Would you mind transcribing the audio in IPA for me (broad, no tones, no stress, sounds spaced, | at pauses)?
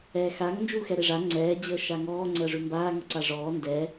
ɛː x a ŋ n d͡ʒ uː x ɛ ɾ e ʐ a ŋ͡ǀ ɛː d͡ʑ əː ʃ a ŋ ɔː ŋ͡ǀ əː ʐ ʉ m b aː ŋ ɔ ǀ a ʐ ɔː n d ɛ